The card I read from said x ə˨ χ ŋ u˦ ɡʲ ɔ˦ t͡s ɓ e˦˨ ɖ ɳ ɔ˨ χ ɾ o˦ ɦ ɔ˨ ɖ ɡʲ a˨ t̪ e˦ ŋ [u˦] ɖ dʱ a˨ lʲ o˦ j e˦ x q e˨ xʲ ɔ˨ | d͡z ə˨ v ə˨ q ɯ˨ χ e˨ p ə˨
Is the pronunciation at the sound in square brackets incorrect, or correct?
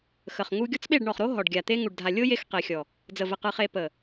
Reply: incorrect